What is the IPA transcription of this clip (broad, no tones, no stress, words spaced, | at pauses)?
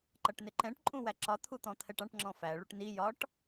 ǃʌʈnɪǃɛ̃ʈ ǃʼũwæǁɒ t̪ʰut̪ɔ̃t̪ʰɛʈɑ̃ʈ ŋ͡ǁɔ̃fæ ɭuʈni jɒʈ